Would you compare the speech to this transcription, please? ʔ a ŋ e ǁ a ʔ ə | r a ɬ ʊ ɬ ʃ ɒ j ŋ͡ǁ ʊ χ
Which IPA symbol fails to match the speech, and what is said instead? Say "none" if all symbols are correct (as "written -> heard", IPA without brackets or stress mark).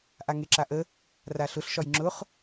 none